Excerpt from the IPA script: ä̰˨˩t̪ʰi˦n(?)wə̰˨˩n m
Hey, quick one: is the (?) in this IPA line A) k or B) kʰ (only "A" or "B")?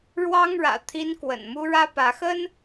A